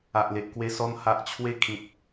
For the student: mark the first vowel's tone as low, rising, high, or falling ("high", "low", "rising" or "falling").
low